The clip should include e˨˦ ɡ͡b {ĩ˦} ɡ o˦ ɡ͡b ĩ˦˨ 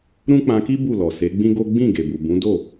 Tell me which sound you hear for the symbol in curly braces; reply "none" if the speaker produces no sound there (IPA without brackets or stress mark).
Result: ĩ˦